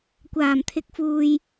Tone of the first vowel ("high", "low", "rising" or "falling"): low